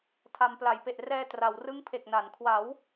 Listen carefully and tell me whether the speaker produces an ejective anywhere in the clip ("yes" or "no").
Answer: no